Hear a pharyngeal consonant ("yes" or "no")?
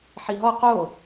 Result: yes